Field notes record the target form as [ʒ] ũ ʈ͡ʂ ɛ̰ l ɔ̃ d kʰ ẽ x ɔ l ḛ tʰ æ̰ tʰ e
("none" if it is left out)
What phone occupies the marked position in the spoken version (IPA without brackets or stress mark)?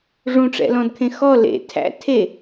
ʐ